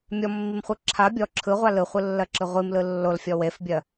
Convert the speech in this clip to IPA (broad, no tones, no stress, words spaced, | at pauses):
mʲɔmːimχʷɯ ǁʰa bʲɔ ǁʰɯʁʷal ɯχʷɯlːɜǁɯ ʁʷimlɯ lːolfʲɔ wefbʲɜ